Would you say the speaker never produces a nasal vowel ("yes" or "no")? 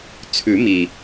yes